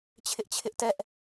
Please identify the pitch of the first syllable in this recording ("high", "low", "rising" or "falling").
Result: high